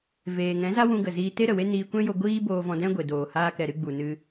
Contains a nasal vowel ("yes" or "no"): yes